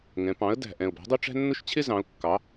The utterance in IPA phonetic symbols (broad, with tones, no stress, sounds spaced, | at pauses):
ŋ ɛ̃˩˧ p ɑ̃˩˥ ə̯ d æ̤˨˩ ʔ ɛ̃˨˩ ʊ̯ b æ̤˩˥ dˤ ʊ˦ ʈ͡ʂ æ̤˦ nː ʊ˦ ʃ t͡ɕʰ ɪ˦ z ɑ̃˩˧ ʊ̯ kː ɑ˩˧